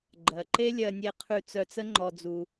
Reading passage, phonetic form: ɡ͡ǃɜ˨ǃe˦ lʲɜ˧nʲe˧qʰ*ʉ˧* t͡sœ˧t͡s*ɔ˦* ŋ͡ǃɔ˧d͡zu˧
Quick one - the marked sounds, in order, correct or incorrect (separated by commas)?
correct, incorrect